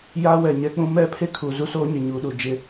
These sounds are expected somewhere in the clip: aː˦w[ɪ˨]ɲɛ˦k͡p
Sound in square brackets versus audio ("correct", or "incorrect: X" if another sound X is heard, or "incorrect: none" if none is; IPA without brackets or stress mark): incorrect: ɛ˨